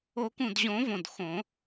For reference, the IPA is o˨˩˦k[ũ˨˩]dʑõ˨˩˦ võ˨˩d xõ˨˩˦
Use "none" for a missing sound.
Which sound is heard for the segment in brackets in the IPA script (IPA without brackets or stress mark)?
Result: ũ˨˩